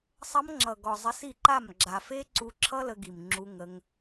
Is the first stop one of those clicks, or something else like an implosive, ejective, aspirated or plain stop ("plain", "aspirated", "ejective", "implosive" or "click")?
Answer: click